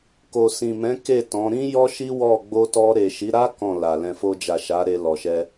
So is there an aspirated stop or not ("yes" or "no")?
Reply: no